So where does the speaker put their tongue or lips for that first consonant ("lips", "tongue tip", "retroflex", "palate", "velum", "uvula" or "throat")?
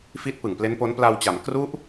lips